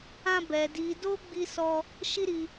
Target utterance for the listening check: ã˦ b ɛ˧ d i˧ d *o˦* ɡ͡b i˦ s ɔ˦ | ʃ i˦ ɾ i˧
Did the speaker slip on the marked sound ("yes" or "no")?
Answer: no